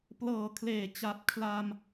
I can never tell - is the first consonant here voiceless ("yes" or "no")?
yes